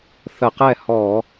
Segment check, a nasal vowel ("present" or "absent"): absent